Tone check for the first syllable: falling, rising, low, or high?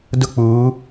high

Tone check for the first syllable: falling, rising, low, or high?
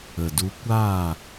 low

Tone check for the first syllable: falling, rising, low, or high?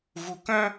low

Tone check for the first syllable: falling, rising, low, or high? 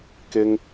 high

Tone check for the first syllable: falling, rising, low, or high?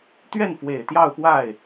falling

